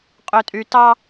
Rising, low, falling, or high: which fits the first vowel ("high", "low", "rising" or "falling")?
low